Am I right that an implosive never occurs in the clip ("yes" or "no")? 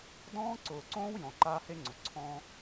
yes